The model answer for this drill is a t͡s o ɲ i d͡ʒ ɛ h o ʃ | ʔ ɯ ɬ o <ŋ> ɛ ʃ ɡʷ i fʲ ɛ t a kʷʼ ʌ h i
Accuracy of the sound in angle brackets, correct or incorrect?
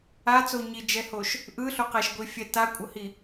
incorrect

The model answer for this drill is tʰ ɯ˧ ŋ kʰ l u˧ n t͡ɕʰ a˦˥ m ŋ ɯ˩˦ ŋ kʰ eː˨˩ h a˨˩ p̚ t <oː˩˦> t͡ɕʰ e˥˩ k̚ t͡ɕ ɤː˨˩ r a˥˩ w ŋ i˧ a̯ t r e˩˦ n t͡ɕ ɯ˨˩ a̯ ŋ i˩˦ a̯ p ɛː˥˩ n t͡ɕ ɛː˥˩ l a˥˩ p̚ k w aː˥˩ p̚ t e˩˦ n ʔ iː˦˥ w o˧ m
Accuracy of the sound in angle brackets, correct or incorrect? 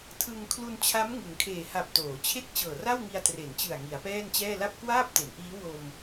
correct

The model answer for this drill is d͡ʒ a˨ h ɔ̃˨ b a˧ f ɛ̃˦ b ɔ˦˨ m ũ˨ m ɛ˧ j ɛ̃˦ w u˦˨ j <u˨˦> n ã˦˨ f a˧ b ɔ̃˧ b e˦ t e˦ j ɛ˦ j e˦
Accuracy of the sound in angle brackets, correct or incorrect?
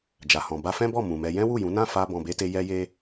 incorrect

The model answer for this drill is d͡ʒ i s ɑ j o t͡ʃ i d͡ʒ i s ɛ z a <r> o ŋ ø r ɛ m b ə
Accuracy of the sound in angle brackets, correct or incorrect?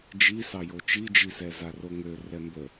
correct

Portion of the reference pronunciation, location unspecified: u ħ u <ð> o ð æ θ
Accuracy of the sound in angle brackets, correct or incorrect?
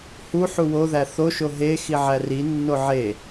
incorrect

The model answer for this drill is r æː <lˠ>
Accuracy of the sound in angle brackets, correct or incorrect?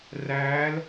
incorrect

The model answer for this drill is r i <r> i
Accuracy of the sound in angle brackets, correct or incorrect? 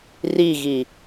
incorrect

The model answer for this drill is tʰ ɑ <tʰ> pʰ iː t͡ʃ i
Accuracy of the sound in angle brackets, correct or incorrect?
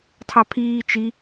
incorrect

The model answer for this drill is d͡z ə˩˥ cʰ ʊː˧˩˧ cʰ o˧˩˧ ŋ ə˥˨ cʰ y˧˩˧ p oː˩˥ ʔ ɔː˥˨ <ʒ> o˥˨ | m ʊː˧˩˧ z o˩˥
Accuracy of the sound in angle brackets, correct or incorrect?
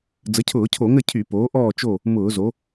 incorrect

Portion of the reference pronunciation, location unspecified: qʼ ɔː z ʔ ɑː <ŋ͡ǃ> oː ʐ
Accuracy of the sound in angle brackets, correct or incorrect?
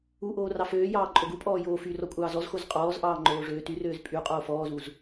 correct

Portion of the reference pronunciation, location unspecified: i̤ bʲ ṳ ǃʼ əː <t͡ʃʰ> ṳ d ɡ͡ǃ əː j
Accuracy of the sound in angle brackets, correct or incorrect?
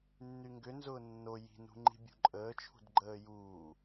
correct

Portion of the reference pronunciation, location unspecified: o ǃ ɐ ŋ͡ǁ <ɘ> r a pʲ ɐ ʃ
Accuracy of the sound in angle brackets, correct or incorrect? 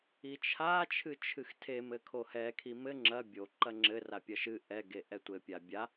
correct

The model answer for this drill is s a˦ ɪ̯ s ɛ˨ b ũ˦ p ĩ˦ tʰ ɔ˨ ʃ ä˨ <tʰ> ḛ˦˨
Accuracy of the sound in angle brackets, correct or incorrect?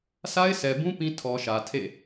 correct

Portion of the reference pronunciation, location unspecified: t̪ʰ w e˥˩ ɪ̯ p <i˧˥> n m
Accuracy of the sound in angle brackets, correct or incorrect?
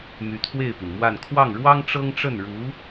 incorrect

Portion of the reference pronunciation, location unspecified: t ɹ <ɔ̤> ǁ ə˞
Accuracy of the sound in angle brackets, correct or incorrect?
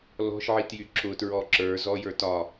incorrect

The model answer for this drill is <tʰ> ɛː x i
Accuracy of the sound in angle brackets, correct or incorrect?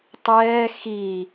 incorrect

